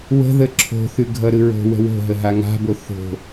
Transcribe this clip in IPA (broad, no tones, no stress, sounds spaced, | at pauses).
w ə̤ ð ə ǁʰ o̤ θ ʉ ɡʱ ʌ ɾ ɯ ɹ o̤ w ə̤ w o̤ ɦ ə ɦ a ŋ a̤ b o θ o̤